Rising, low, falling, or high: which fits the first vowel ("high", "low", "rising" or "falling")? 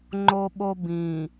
high